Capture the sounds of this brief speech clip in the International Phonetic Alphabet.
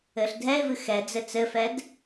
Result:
ɘ ɬ dʱ ɛ ɪ̯ v ɨ x ɛ d͡z ɘ t͡s ɘ f ɛ d

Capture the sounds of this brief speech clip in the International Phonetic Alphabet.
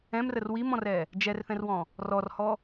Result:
ɛ̃ m r ə r w i m ɔ̃ r ɛ | d͡ʒ ɛ r θ ɛ̃ r w ɔ̃ | r ɔ r h ɔ

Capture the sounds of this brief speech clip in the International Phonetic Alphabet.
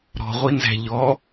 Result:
ɾ ɔ̤ ʁʷ i n z æ̤ ʎ ɔ

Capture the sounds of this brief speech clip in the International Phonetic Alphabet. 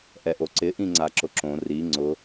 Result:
ʔ ɛ ʔ o ǀ ɪ ʔ ĩ ŋ͡ǀ a ǁ ʊ ǁ õ r i ŋ͡ǀ ʊ

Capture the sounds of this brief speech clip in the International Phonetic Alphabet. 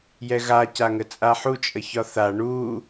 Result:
j ɛ ɣ a c a ŋ ə t͡sʼ a ħ u t͡ʃʼ ə ç ɒ θ a ɳ u

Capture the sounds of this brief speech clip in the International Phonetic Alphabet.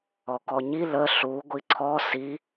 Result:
ɔ k ɔ ɲ i l ə ɬ u ɡʷ i ǀʰ ɔ s i

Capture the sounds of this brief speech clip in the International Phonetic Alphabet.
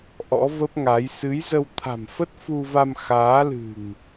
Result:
ʔ ɔ̰˧˥ v ə˦˥ p̚ ŋ a˨˦ j s ɨ˨˦ j z ə˧ w t̪ʰ a̤˨˩ m f ə˦˥ t̚ f u˧ v a˧ m x aː˨˦ l ɨ̤˨˩ ŋ

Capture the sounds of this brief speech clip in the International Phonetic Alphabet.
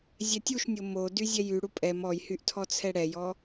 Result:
zʲ ɛ tʲ u ʃ nʲ o m o d y zʲ ɛ j y ɽ u pʼ ɛ m ɔ j h y ʔ tʰ ɔ t͡sʰ ɛ ɽ ɛ j ɔ

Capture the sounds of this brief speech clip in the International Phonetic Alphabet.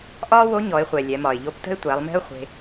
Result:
ʔ ɒː˥ w o˧˥ ɲ ɔ˩˧ ɪ̯ χʷ ɛ˩ lʲ ɛ˩˧ m ɒ˩ ɪ̯ ʎ o˧˥ p t ə̤˥ ɪ̯ tʷ æ˩˧ lˠ m e̤˥ ʊ̯ χʷ e̤˧

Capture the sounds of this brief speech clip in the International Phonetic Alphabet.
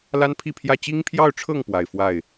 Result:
l a˥ n pʰ i˥˧ pʰ j ä˥˩ t͡ɕ i˥ ŋ pʰ j ɑ˥˧ ʊ̯ ʈ͡ʂʰ ɤ˥˩ ŋ p w a˨˩ ɪ̯ f w a˥˩ ɪ̯

